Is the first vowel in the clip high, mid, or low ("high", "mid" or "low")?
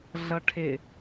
mid